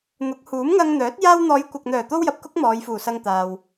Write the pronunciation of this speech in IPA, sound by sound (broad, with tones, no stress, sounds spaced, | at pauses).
n̪ ʊ˨˥ k̚ h uː˨˥ m ŋ ɐ˧ ŋ n̪ œː˨˥ t̚ j aː˧ w n̪ ɔː˨˧ j kʷ ɐ˨ k̚ n̪ œː˨˩ t̪ o˥ w j ɐ˨ p̚ k ʊ˥ k̚ m ɔː˨˧ j f uː˨˩ s ɐ˧ ŋ t̪ aː˨ w